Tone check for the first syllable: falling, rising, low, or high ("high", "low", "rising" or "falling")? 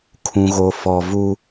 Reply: low